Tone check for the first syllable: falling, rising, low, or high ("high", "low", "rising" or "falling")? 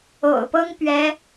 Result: low